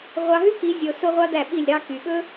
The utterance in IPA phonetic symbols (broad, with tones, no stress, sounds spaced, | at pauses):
ʁʷ ɑ˧ ɦ ʉ˦ k i˨˦ zʲ o˧ s o˦ ʁʷ ɑ˦ d̪ æ˦˨ ɓ i˦˨ lʲ ɾ ɑ˧ k y˨ ɓ ɵ˦